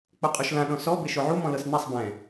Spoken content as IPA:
k͡p o qʼ u ʃ l ã ɗ ɔ̃ s ɔ b e ʃ o ʕ u m ɔ̃ l ɤ s n ɛ sˤ b ɛ̃

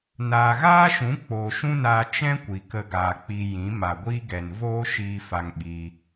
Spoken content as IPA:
n aː˨ ɣ aː˦ ʃ ũ˨˦ k͡p oː˨ ʃ ũ˦ n aː˧ t͡ʃ ɛ̃˦ kʷ i˨ k ə˧ ɡ aː˨ k͡p i˧ j ĩ˨˦ m a˨ ɡʷ iː˦ ɡ ɛ˨ n v oː˦ ʃ iː˧ f a˧ ŋ ɓ iː˧

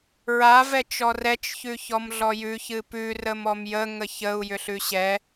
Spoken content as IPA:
ɹ a v ɛ t͡ʃ ɔ r ɛ t͡ʃ ç ʉ ç ɔ m ɮ ɔ j ʉ ç ɨ p ʉ r ə m ɔ m j ə ŋ ə ç ə u̯ j ʏ ɬ ʉ ɕ ɛ

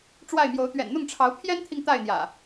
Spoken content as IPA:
ʈ͡ʂ w a˥˨ ɪ̯ m j o˨˦ ʊ̯ t̪ ɥ ɛ̰˨˩ n n̪ ʊ˥˨ ŋ ʈ͡ʂʰ ɑ˨˦ ʊ̯ pʰ j ɛ˦ n t̪ʰ i˨ ŋ t̪ a˥˨ ɪ̯ n̪ j ä̰˨˩

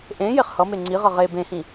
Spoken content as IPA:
ʔ ẽ j e χ h ʌ m e ŋ͡ǀ i ʁ ʌ ʁ e b ẽ h ĩ

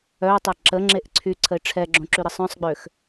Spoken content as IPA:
œ ʊ̯ tˤ ɛ ǁ ə ŋ͡ǁ e ʔ ǀʰ y ǀʰ ə ɪ̯ ʈ͡ʂʰ ɛ ɡ͡ǁ õ ǁ y ɾ ə sˤ œ̃ sˤ ɡ͡b ø x

